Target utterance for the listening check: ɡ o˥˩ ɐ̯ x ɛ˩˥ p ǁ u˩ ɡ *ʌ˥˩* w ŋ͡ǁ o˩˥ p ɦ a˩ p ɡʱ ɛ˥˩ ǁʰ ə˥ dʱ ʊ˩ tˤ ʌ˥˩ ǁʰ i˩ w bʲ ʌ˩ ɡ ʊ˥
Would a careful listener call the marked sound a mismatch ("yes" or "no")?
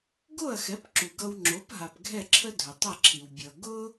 yes